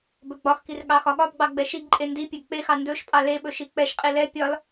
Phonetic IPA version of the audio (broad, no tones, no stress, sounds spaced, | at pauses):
b ɵ ɡ͡b ɒ x k i r ɠ ɑ x ɒ ɠ ɒ b ɡ͡b ɑ ɡ͡b ɛ ʃ i ɡ ǃʼ e n d i pʲ ɛ ɡ k͡p e x ɑ n d ɵ ʃ pʼ ɑ l e ɓ ɵ ʃ i k͡p ɛ ʃ qʼ i l ɛ pʲ ɒ l